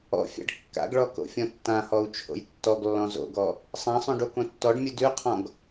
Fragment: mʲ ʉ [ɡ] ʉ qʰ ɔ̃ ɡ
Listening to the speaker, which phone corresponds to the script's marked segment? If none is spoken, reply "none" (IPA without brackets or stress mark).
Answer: d